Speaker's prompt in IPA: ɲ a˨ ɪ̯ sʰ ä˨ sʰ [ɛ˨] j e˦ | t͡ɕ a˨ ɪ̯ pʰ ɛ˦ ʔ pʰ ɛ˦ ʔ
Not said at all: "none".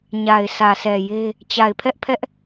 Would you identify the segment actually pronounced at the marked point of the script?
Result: ɛ˨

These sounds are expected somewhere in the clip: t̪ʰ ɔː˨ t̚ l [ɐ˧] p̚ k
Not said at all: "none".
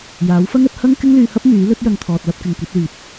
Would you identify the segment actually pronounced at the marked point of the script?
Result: ɐ˧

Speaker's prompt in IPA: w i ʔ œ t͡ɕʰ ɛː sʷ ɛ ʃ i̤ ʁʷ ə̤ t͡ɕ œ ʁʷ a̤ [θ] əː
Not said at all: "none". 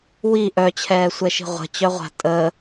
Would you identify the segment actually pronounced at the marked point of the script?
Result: tʼ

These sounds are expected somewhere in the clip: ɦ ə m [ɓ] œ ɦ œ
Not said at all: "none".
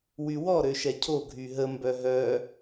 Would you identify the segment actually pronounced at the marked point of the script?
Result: b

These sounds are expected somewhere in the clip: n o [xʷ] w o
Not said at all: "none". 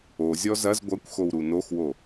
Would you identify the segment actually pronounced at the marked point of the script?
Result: x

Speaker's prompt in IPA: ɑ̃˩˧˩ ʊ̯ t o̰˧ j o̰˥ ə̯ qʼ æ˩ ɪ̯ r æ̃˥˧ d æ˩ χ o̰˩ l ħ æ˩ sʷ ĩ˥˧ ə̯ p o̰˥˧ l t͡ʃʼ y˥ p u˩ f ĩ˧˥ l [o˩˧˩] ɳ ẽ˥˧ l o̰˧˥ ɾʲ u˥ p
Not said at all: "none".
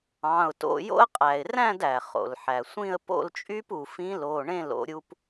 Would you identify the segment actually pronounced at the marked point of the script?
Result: o˩˧˩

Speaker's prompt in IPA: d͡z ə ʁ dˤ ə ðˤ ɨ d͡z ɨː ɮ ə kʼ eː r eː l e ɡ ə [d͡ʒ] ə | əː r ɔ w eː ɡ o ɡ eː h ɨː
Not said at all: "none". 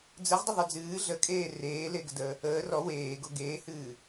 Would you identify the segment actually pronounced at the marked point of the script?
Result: d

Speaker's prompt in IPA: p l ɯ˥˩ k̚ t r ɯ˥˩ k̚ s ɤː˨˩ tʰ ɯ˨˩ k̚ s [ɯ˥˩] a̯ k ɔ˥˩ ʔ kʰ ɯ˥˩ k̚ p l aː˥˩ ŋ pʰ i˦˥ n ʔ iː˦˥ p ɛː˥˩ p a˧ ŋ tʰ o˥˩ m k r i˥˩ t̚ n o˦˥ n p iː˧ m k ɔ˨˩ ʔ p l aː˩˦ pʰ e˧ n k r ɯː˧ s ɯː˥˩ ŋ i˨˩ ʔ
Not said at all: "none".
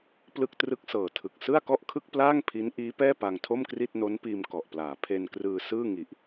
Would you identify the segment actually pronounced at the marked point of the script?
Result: ɯ˥˩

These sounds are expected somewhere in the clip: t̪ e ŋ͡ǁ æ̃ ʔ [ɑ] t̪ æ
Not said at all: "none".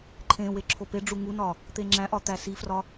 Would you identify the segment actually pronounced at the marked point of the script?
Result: ɒ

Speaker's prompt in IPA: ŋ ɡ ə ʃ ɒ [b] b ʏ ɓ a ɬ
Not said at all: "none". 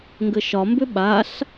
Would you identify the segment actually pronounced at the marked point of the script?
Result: m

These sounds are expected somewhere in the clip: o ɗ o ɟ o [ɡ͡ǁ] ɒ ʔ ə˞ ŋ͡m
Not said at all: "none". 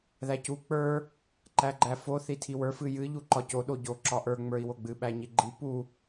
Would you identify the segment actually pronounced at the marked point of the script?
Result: ǁ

